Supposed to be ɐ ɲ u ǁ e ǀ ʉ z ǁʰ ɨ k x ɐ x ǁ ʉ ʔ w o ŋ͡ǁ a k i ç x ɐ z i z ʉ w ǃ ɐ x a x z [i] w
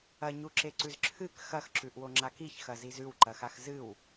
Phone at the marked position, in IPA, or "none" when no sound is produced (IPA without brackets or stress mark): ɨ